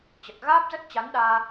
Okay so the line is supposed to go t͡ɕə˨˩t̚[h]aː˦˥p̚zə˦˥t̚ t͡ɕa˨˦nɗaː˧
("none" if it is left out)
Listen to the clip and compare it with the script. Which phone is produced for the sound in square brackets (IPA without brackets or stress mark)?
ɣ